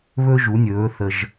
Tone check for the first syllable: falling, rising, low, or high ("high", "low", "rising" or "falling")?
high